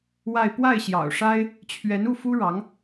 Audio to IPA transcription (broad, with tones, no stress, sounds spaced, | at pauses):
w a˥˧ ɪ̯ p w a˥˩ ɪ̯ ɕ j ɑ̰˨˩ ʊ̯ ʂ a˥ ɪ̯ | t͡ɕʰ ɥ ɛ˧˥ n u˥˩ f u˥ ɻ ɑ˧˥ ŋ